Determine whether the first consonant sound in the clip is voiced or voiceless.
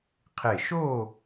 voiceless